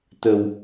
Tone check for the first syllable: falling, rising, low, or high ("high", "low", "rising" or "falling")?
low